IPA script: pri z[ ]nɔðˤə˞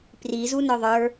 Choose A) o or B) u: B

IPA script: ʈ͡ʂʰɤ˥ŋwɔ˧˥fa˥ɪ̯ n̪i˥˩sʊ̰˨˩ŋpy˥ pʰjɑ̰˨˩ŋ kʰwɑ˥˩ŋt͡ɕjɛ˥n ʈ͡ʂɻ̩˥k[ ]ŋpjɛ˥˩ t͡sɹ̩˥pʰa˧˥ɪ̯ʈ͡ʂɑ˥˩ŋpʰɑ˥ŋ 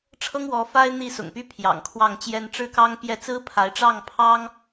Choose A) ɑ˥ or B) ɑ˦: A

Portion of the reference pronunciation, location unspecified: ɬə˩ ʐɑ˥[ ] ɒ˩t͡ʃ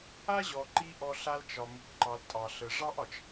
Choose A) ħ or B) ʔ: B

